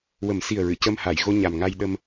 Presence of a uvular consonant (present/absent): absent